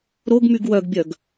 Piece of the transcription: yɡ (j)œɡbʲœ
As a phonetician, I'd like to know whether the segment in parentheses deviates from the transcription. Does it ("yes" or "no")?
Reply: yes